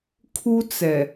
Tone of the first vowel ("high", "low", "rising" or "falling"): high